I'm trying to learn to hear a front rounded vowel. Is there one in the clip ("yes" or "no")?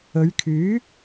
yes